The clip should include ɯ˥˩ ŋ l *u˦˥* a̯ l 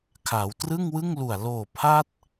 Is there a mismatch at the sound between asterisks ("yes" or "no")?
yes